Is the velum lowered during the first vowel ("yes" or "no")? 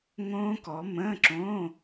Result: yes